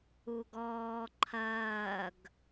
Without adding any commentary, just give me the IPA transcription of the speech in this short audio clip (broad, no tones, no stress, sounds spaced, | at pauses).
u ɡ ɔː ǃʰ ɐː ɡ